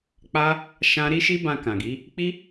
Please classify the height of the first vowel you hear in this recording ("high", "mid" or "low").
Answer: low